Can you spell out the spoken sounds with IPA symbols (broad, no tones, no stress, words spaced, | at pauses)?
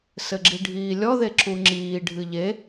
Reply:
sɘɡ͡ǁiɖʱiːlʲɔ ðeǁuŋ͡ǁiː ɖʱɨʎe